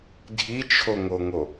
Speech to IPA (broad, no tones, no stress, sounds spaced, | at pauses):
dʱ i t͡ʃʰ o ŋ o ŋ o